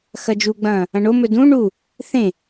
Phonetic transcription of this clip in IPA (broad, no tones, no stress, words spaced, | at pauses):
xɐd͡ʒuɡ͡bɐ̃ː | ɐ̃ɳomɵ dũ ɳu | θẽ